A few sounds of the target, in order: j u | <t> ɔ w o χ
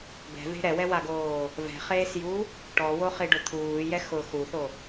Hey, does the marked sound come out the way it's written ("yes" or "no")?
no